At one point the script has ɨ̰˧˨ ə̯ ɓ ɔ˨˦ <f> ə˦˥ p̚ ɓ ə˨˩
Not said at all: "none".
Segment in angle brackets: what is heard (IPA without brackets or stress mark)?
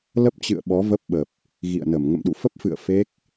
v